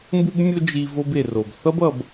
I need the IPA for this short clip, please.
m b u˥ b mʲ o˥ d͡ʒ i˧ v o˧ b e˩ r o˩ b θ ʌ˥ b ʌ˧ b

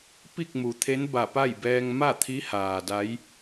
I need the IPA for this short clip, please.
p i˥˨ k̚ m u˩˧ t̪ʰ e˧˥ n b a˧˩ p a˥˨ j b ɛː˧ ŋ m a˥˨ t̪ʰ i˧˥ h aː˩ d a˧˥ j

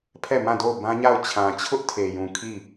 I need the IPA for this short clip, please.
pʰ ɛ˦˨ m ã˦˨ d o˦˨ ʊ̯ b ã˦ ɲ a˦˨ ʊ̯ t͡ɕʰ ã˨ t͡ɕʰ ʊ˦ ʔ tʰ e˨ j ũ˨ kʰ i˦˨

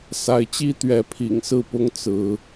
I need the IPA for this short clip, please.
s a˨˦ ɪ̯ t͡ɕ i˦ t̪ ɥ ɛ˨˦ pʰ ḭ˨˩ ŋ s ɹ̩˥˨ p ʊ˦ ŋ t͡s ɹ̩˨˦

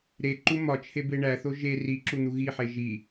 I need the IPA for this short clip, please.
ɾ e ǃ u m ɒ t͡ʃʰ e b e ɳ æ θ o ʒ e r i ǁ u n̪ u ɣ i ħ e ʒ i

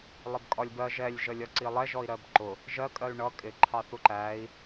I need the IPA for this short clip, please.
lˠ ɪ b kʼ ɒ lʲ b ɜ ʒ ɛ lʲ ʒ ə lʲ ɒ ǀ i lˠ ɛ ʒ ɔ i̯ ɾ ɜ b ǃ ʊ | ʒ ɜ kʼ ɜ y̯ ɳ ʌ kʼ ɪ ǃʰ ɑ θ u ǃ æ i̯

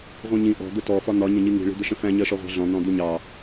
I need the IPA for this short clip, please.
ʁʷ ĩ ɲ ĩ ʔ ɔ̤ d̪ ʊ t ɔ f ɒ n̪ ɒ ɲ ə̃ ɲ i ŋ i̤ ɭ i̤ d̪ ə ʃ ə̃ f æ̃ ɲ ɜ ʃ ɔ ʁʷ ɑ̤ ɮ ɔ̃ n̪ ɔ̃ d̪ u ɲ ɑ

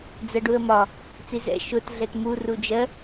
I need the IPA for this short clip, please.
d͡z ɜ ɖ u ə̯ m ɒ | t͡s i z ɛ̰ ʃ ʊ t ɮ ɛ t m u r u d͡ʒ ɜ

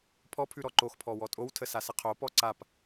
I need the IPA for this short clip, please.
pʰ ɔ pʰ ʉ ɾ ɔ ǃ o x pʰ ɔ w ɔ tʼ o w tʰ ə s a s ə qʰ o p ɔ ǀ a p

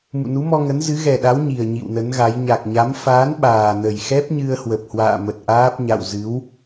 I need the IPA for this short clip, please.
m ṵ˧˨ n u˨˦ m ɔ˧ ŋ ə˨˦ n z ɨ˨˦ ɣ ɛ˨˩ ɗ a˨˦ w ɲ i˨˩ ə̯ ɲ ḭ˧˨ w n ə˨˦ n ɣ a˨˦ j ɲ a˨˩ k̚ ɲ a˨˦ m f aː˨˦ n ɓ aː˨˩ n ə˨˩ j x ɛ˦˥ p̚ ɲ ɨ˧ ə̯ h w ə˨˩ p̚ h w a̰ː˧˨ m ə˨˩ t̚ ʔ aː˦˥ p̚ ɲ a̰˧˨ w z ɨ˨˦ w

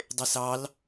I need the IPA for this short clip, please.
dˤ e s ɑ l

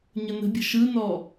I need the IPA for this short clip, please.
ɲ ə n ə̤ bʲ ə̤ ʃ ɯ n ɔ

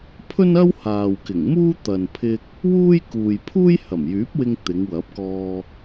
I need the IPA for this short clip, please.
pʰ ɵ˥ n ɐ˥ w h aː˨ w k ɪ˨˩ ŋ m uː˥ t̪ ɐ˨ n pʰ ɪ˧ k̚ | w uː˥ j k uː˨ j pʰ uː˥ j h ɐ˨˩ m j yː˨˥ p̚ w ɪ˧ ŋ t̪ ɪ˨˧ ŋ w ɐ˨˥ p̚ k ɔː˧

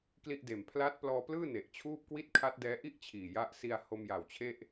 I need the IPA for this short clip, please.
k l i˥˩ ʔ d eː˨˩ m pʰ l aː˦˥ t̚ p l ɔː˧ p l ɯː˥˩ n e˨˩ ʔ t͡ɕʰ uː˥˩ p̚ k w i˥˩ t̚ kʰ a˦˥ t̚ d ɛː˦˥ ʔ i˥˩ ʔ t͡ɕʰ iː˨˩ j a˦˥ ʔ s i˧ a̯ h o˧ m j a˨˩ w t͡ɕʰ e˥˩ ʔ

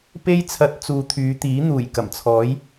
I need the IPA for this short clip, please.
p e˥ j t͡sʰ ɐ˧ t̚ t͡s uː˨ t̪ʰ yː˨˧ t̪ iː˨˥ n̪ uː˨˩ j k ɐ˨˩ m t͡sʰ ɔː˨˥ j

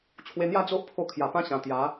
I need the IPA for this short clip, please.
t͡ɕʰ w e˧ n̪ j a˥˧ d͡z o˦ ʔ pʰ o˧ kʰ j a˨˩ p ã˦ ɕ ã˨˩ t̪ j a˨˦

